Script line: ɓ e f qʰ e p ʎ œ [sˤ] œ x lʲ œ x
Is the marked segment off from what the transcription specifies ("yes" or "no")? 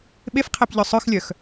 no